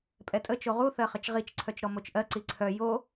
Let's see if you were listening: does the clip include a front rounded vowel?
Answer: yes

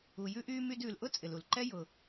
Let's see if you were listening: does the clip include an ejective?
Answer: yes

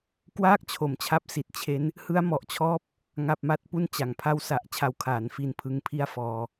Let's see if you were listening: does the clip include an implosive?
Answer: no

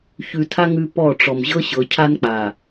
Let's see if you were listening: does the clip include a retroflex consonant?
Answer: yes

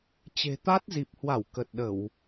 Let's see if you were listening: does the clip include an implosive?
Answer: yes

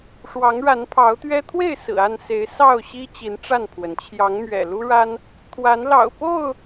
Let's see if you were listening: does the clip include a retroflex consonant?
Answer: yes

